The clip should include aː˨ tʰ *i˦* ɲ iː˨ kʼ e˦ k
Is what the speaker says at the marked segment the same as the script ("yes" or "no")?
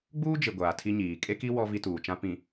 yes